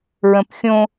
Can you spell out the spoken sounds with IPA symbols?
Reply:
ɹə̃pxʲõ

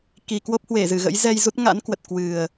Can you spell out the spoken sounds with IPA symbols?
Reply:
ki˨˩ kwo˦˥p̚hwe˧˩zɨ˧˩ɣə̰˧˥j zɛ˧jzu˦˥t̚ ŋa̰˧˥nkwə˨˩t̚ kwɨ˨˩ə̯

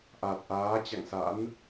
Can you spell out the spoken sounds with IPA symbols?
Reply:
ʔa˨˩t̚ʔaː˨˦ t͡ɕa̰˧˨ŋsa̰˧˥n

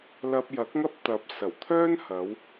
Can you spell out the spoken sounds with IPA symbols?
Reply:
lɐ˧p̚jɐ˨˥k̚ŋɐ˥p̚t̪ɐ˨˥p̚ sɐ˨˩w t̪ʰœː˥nhɐ˨˧w

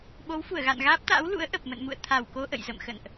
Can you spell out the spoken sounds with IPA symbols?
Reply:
ɓo˨˦wfu˧˩ə̯ɣa̰˧˨nɣaː˦˥p̚ t̪a̰ː˧˥wlṵ˧˥ə̯ ʔə˨˩p̚mə̰˧˨nmṵ˧˨ə̯ t̪ʰa˧˩wko˧ ʔə̰˧˨jzə̰˧˨mxə̰˧˨nʔ

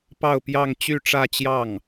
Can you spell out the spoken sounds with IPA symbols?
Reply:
pɑ˥˧ʊ̯pjɑ˥˧ŋ t͡ɕy˥˧ʈ͡ʂä˥˧t͡ɕjɑ˥˩ŋ

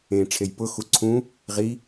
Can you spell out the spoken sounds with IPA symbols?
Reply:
ẽ ʈ͡ʂʰejpʊ xuǀʰũ | ʁi

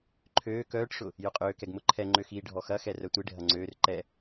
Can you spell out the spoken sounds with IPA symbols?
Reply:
ǃʰøː kœːʈʂʊ | jʊqʼøːkɛɡ mʊǃʰɛŋ͡ǃø xiːɖʱɔxɐxɛ rœtʷiɖʱɐ ŋ͡ǀøːr ǃɛ

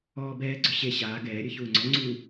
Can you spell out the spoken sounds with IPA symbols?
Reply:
ɔːbɛːɡ͡ǀɵ ɕe ɕaːɡ ɛːɾʲɵ çuːŋ͡ǀɔŋ͡ǀuː

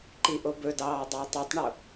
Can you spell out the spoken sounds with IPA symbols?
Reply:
ǃiʔobɵdɑː dˤøʊ̯tˤutˤɳo

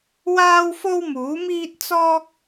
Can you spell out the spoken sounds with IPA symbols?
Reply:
waː˥wfo˥wmuː˨˥ miː˥t̚t͡sɔː˥k̚

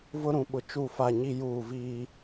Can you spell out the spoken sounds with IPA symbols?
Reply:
vʊ˦ ɾũ˨ɓʊ˨ t͡ʃu˦˨fa˦˨ ɲi˦juː˦˨viː˦

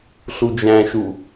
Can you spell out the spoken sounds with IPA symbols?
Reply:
ɬud͡ʒæ̃ʃu

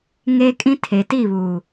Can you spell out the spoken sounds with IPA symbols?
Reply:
ŋeː˦kʼĩ˦ tʰe˨ti˦˨βuː˨

